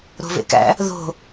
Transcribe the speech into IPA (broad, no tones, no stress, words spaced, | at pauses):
ɾo̤vḛkæ̰ | ðo̤